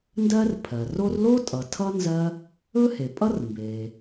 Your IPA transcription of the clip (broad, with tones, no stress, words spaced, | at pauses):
ndɜ˥r pʰɜ˩ro˥r lo˥ tʼʌ˩tʰʌ˥ nzɜ˥ | ɵ˥he˩pʼʌ˥rmbe˩